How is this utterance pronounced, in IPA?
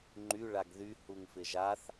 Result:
ŋ͡ǃ y ɭ a ɡ ð y h u ŋ f ɪ ʒ a θ

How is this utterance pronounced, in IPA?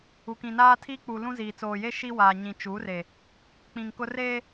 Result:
u˨ k ĩ˨ n aː˦ tʰ iː˦ k͡p uː˨ l ũ˦ z iː˨ t͡s oː˨ j e˦ ʃ i˦ w aː˨ ɲ ĩ˨ t͡ʃ u˨˦ r e˨ | k͡p ĩ˨ ŋ k ʊ˦ r eː˦

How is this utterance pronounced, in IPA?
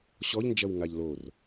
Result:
ɕ ɔ ʎ n d͡ʒ ɐ w ŋ a ʎ l o r

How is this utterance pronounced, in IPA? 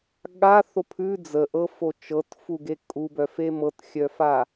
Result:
ɠ a θ o pʰ ʉ d͡z ə ʔ ɤ f o t͡ʃ ɤ t f u ɡ e kʼ u b œ f e m ɤ t xʲ œ f a

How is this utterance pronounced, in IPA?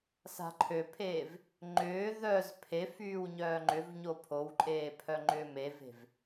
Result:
s a̤ ǃʰ ø pʰ eː v | ŋ͡ǃ ʏː ð œ z pʰ e f yː w ɲ œː ŋ͡ǃ ʏ v ɲ o pʰ o w ǃʼ eː pʰ œ ŋ͡ǃ ʏː m e v e̤ v

